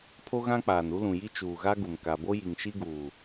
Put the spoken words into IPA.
pʰo˦ɣã˦k͡paː˨n u˦lũ˨ji˦ t͡ʃuː˨ɣa˦ɡu˨m ka˨bo˦ji˨ŋ ʃi˦ɡuː˨

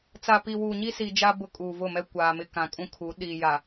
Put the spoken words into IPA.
t͡sa˨pi˨wuː˨ ɲi˦si˨d͡ʒa˦ bʊ˦kʼuː˨vʊ˦˨mɛ˦ kʷaː˨mɪ˦ kã˨kʼũ˦kʰu˨˦ ɗiː˨ja˨

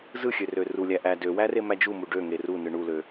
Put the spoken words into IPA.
zɯxʲørø rulʲæʔæ døwære mæd͡ʒumu ɖøŋe runɯ ɳulø

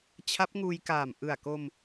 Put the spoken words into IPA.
t͡ɕʰa˦˥p̚ŋuː˧jkaː˨˩m ʔɯ˨˩a̯ko˧m

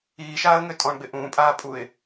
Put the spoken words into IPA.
iːʃaːə̯ŋø tʼɔ̃ɳɡ͡bɪ ʔũːpʼaːpʼuɪ̯

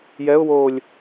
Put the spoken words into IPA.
jɛʊ̯woːlʲ

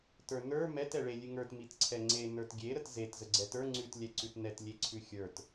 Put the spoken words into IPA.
tə˞nə˞ mɛt ɛɭe lʲʉŋə˞t mitǀʰɛŋ͡ǀe nə˞tɡʲe ɾətzet zəɡ͡ǀɛtə˞ ŋ͡ǀʉt lʲɛǀʉtnɛt lʲeǀʰʉxʲə˞t

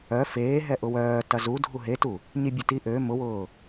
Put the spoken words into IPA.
œ feːɦɛ ʔʊwœː tɐzu dʱuɦetu | ɲibʲʊti ʔø mʊwʊː

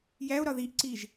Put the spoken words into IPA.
jæo̯ɾɒ ðiʔǀiʒ

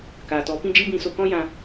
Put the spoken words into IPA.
kaː˨tɔ˨˦pĩ˦d͡ʒi˦ bĩ˦so˦ kɔ̃˦jã˧

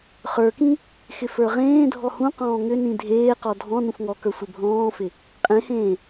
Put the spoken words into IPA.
χə˞kĩ | xɪfə˞ʁẽːdʱɔ hũqɔ̃ː ŋʏ nĩdʱeːqɔ dʱɔ̃ nũfŋɔkə˞ sʷɪbʱɔ̃ːfɪ | qʼẽhẽː

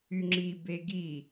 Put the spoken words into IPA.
yŋ͡ǁi beɡi

